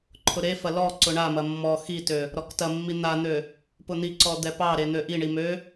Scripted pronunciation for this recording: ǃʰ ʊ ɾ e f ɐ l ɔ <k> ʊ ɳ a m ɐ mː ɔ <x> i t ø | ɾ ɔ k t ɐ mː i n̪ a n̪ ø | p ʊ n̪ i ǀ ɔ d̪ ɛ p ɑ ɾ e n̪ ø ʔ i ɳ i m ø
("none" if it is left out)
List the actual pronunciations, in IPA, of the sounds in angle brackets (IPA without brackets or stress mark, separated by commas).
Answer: ǀ, x